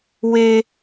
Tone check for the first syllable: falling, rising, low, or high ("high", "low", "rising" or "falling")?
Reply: high